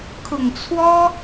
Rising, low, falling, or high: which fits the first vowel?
low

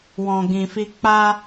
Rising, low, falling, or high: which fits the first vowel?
low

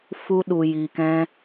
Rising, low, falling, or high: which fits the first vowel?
high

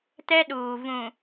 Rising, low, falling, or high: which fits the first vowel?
high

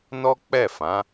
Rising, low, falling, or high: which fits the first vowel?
high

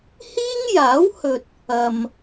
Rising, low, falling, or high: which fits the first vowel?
high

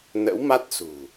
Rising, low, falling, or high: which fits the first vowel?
rising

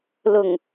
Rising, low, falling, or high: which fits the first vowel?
low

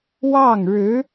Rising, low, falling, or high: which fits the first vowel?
falling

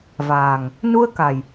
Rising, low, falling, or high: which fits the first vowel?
low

